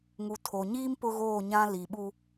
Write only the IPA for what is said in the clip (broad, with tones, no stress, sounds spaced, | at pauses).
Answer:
ŋ u˨ tʰ o˨ ɲ iː˦ m p ʊ˦ ɣ oː˦˨ ɲ ã˦ l i˨ ɓ u˦